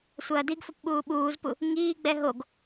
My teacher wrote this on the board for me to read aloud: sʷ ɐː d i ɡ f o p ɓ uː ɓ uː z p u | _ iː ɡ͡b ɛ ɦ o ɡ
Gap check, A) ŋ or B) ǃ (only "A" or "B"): A